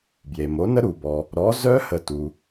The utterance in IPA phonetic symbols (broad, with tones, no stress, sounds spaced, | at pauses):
b j e˩ m o˩˥ n ə˦˥ ɾ u˩ b ɔ˩ | ɾ ɔ˩˥ z œ˦˥ h ə˧˩ t u˩